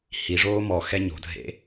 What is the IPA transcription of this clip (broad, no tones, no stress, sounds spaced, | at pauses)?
h i ʐ oː m ɔ x ɛ ɲ o̤ dʱ ḛ